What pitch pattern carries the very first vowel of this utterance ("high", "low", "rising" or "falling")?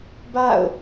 falling